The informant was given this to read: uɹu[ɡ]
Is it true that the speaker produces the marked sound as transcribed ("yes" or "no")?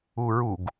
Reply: yes